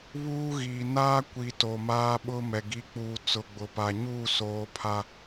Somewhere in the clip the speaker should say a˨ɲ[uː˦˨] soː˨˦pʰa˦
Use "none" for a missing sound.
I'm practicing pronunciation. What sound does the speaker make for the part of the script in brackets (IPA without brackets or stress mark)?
uː˦˨